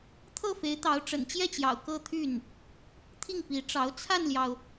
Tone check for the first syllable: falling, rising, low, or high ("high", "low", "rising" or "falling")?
falling